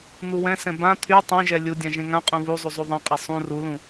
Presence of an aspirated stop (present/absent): present